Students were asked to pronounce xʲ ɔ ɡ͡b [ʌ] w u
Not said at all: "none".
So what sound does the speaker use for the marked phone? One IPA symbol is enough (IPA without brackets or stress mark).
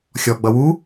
ʌ